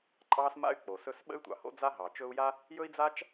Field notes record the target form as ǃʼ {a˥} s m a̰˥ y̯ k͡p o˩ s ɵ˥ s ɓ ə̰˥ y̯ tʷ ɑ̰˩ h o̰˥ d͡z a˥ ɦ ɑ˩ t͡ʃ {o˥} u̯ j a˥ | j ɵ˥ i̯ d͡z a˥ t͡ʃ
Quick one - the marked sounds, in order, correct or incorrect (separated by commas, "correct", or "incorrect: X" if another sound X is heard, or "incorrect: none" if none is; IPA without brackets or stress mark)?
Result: incorrect: ɑ˥, incorrect: ɵ˥